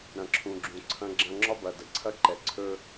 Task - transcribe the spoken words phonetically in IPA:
ɾɐ̃˨ǁʰũ˨ɡ͡ǁũ˨ ǀʰɐ̃˦ɡ͡ǁɐ̃˦ ŋ͡ǁɒ˦bɐ˨də˨ ǀʰɐ˦ǃɛ˨ǀʰɵ˦

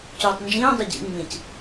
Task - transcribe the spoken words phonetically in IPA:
cuːtˤnd͡ʒĩː dˤʏɟḭ ŋ͡mĩc

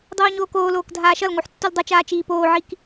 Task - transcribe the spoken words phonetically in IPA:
dˤoːɲoːkoːloːk dʱaːʃʌlŋoħ tːuldˤʌt͡ʃaː t͡ʃiːpoːʕik

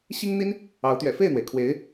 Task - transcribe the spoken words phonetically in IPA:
ɕi˥ŋn̪i˥n | ɑ˧˥ʊ̯ t̪ɥɛ̰˨˩fe˥˩ɪ̯n̪we˩ɪ̯ kʰwe˧˥ɪ̯

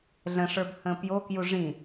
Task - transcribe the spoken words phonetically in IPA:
ɮə̃ʂə˞b hə̃ːpjokju ʐĩ

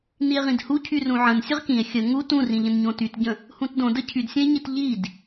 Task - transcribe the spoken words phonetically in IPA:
nie̯ʁĩdhu cʰyrũʕə̃n sʲəʁkĩe̯ xʲə ŋu tũrĩʎə̃n ɲõtytɟə̃ | hũtdõ dəcʰydsʲə̃e̯ɲit ʎid

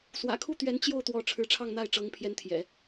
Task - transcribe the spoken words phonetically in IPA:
swä̰˨˩kʰu˥˩t̪ɥɛ˧˥n t͡ɕjo˥˩ʊ̯t̪wɔ˧˥ ʈ͡ʂʰɻ̩˧˥ʈ͡ʂʰɑ˥˧ŋn̪a˥˩ɪ̯ ʈ͡ʂɤ˧˥ŋpʰjɛ˧˥n t̪ʰjɛ̰˨˩˦

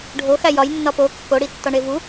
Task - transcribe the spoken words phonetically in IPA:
ɖʱoxæ jɒjnːɒ po kːoɽitːɒɳe vu

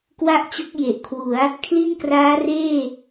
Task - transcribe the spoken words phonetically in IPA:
kwa˥˩ʔt͡ɕo˦˥k̚ je˨˩ʔkʰwu˩˦a̯ | kʰli˥˩nkraː˦˥reː˥˩

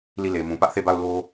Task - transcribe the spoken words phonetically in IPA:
li˦˨le˨mũ˨ pä˦ʔθe˦˨ba˦˨ʊ̯ lo˦

